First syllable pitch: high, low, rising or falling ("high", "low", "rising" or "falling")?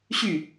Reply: falling